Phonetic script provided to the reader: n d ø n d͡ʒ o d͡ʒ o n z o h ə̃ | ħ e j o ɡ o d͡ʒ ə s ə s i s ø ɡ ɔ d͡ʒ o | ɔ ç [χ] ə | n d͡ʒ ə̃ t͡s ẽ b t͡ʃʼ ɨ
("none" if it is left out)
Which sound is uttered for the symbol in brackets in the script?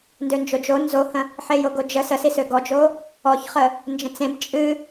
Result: χ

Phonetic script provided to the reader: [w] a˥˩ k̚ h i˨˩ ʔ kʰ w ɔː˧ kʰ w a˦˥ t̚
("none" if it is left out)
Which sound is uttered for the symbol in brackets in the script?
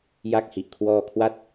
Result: j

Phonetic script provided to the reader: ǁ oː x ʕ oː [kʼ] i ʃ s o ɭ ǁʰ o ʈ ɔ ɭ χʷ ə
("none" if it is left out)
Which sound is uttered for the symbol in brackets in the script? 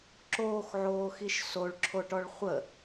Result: x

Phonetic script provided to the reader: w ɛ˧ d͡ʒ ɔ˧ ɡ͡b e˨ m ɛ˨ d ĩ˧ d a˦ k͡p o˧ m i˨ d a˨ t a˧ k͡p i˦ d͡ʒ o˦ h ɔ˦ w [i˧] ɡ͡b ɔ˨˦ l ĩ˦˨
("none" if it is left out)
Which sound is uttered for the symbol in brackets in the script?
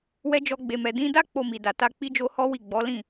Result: i˦˨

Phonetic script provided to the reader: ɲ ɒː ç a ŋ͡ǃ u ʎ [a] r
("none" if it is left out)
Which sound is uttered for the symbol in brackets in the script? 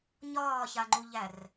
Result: æ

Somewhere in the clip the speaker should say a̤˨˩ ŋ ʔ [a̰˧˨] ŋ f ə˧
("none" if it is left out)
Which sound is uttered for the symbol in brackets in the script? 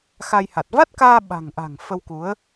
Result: a̤˨˩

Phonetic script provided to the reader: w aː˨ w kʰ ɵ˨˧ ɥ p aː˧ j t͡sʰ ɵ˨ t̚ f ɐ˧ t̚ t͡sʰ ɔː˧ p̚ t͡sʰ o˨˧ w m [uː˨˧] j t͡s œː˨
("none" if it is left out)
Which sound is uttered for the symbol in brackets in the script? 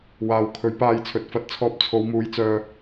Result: uː˨˧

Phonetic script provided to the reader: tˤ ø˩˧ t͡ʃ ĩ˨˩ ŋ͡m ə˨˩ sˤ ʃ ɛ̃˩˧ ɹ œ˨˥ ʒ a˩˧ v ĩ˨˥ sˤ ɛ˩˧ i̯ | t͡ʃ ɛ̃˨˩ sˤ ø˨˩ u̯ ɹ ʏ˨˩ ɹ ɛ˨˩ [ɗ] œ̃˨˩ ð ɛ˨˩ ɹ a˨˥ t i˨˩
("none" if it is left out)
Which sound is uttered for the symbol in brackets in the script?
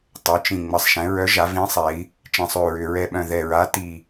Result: ɓ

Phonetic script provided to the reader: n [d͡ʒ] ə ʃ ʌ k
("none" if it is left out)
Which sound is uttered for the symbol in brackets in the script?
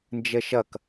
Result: d͡ʒ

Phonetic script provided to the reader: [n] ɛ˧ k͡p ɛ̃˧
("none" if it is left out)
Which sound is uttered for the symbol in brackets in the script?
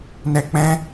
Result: n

